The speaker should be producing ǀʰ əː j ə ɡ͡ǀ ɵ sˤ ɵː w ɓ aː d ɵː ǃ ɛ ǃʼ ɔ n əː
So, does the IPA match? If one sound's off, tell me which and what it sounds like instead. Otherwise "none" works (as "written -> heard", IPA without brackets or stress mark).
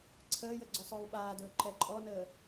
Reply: none